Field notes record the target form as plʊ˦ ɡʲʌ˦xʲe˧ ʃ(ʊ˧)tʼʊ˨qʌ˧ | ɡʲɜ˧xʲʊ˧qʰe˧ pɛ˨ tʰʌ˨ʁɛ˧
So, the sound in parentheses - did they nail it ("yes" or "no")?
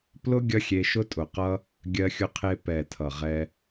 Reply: yes